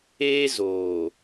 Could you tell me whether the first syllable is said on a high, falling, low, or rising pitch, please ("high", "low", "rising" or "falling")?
high